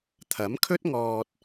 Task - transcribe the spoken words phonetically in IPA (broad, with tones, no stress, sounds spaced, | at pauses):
t̪ʰ ɐ˨˥ m kʰ ɵ˥ t̚ ŋ ɔː˧ t̚